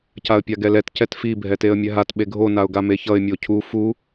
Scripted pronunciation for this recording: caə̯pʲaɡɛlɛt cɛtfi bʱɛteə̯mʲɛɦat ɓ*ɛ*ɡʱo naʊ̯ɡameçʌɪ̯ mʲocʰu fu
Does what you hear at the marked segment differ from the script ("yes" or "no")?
yes